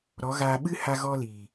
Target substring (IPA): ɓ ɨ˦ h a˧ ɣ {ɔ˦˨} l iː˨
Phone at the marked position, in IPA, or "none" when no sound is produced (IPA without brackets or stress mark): ɔ˧